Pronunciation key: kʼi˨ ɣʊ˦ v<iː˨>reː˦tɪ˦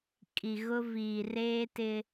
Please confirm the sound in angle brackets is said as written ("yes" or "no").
yes